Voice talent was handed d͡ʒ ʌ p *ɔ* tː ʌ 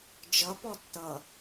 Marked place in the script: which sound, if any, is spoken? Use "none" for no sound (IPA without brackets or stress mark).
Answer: ɔ